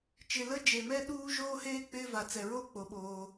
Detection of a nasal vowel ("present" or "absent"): absent